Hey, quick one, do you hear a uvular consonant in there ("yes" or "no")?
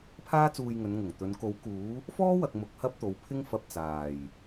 no